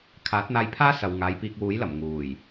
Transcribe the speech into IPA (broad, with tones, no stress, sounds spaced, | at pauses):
kʰ aː˨˥ t̚ n̪ aː˧ j pʰ aː˥ s ɐ˨ w ŋ aː˨˧ j p iː˧ k̚ w uː˨˥ j l ɐ˨˩ m ŋ uː˨˩ j